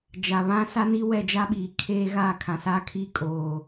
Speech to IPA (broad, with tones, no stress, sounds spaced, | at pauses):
d͡ʒ a˨ β ã˦ s a˦ n i˦ w ɛ˦˨ d͡ʒ a˦ ɓ iː˨ kʰ eː˦ ɣ aː˦˨ kʰ ã˨ s aː˦ kʰ iː˦ kʼ oː˨